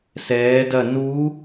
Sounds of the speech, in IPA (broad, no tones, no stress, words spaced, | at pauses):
sɛː dɐ nu